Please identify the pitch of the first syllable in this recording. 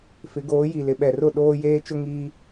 rising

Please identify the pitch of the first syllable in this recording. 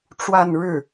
falling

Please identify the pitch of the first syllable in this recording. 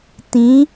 rising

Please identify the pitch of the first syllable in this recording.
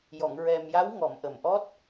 low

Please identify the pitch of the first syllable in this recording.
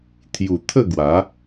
low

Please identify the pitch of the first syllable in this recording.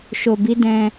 low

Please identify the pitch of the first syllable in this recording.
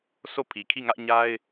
falling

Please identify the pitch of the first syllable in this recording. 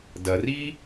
low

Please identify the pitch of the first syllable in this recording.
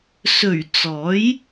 low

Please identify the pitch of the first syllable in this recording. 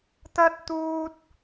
high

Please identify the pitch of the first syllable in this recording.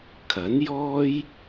rising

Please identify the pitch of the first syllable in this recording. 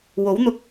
rising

